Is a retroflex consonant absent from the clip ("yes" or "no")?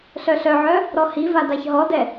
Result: yes